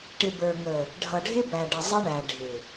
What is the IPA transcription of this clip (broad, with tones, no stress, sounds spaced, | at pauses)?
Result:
ʈ ɪ˨ b ə˞˨ ŋ ə˨ | ɖʱ ʌ˨ ɖʱ ɪ˦ b æ˨ ɖ ə˨ zˤ ɪ˦ ɳ æ˨ ɖʱ ɪ˨